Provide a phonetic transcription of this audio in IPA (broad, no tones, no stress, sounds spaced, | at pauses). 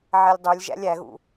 ʕ ɛ lʲ dˤ u lʲ ʒ æ̰ lʲ æ ɣ ṵ